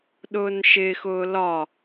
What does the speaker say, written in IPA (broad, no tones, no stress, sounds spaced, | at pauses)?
ɗ ʊː n ʃ ɪ x ʊː l ɒ